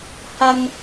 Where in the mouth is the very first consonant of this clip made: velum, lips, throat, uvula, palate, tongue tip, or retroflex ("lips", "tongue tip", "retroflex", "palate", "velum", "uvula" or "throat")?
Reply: throat